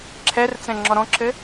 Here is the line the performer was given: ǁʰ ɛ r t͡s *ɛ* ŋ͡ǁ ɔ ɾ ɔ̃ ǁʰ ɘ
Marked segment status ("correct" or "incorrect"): incorrect